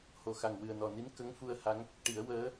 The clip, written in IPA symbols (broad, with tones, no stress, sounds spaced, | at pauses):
h o˨˩ x a˨˩ ŋ w ɨ˨˩ ə̯ n ɔ˨˩ n i˧˥ n k ə˧˥ ŋ f u˧ ə̯ h a˧˥ ŋ | ʈ i˨˩˦ ə̯ w əː˧˥